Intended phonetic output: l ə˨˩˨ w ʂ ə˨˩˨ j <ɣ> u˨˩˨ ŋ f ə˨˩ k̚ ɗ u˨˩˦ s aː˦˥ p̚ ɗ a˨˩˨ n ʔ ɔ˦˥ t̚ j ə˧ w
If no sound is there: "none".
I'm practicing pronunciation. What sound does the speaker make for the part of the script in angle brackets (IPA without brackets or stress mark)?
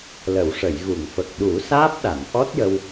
ɣ